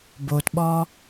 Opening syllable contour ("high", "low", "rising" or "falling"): low